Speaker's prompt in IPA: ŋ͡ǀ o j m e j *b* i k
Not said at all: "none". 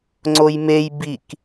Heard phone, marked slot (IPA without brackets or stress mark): b